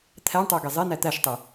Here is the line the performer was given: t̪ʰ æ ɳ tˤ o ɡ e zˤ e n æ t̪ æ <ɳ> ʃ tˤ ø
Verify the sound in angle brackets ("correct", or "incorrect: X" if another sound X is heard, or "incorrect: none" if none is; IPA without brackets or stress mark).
incorrect: none